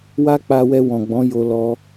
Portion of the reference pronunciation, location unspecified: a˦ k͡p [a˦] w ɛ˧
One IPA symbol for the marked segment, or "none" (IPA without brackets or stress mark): a˧